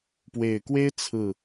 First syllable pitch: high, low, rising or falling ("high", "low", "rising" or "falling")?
low